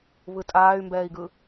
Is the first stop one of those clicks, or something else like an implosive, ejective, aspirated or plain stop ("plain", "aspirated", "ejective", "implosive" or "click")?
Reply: ejective